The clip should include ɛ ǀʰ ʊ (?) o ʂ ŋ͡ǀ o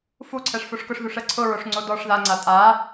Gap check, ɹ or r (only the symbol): ɹ